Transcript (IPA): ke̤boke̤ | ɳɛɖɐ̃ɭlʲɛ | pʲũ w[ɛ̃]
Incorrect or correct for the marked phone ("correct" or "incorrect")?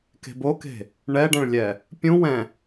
correct